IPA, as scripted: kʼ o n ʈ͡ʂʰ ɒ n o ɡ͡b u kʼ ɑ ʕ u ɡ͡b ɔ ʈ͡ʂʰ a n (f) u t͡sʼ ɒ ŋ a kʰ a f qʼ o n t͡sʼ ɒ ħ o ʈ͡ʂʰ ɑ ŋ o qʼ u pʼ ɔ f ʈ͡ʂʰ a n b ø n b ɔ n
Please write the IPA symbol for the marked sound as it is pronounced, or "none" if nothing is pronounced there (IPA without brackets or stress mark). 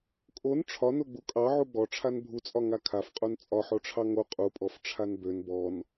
bʱ